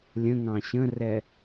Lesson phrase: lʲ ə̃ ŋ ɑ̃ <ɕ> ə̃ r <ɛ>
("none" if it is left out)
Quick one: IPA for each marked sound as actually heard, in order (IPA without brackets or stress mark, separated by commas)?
ɕ, ɛ